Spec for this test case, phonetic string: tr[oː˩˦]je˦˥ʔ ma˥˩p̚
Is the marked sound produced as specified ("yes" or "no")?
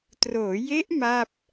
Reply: yes